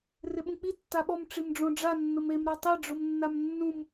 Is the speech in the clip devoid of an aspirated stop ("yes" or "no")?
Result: yes